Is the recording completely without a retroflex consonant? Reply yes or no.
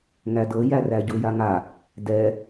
yes